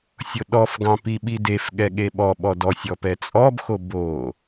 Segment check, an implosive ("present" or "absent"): present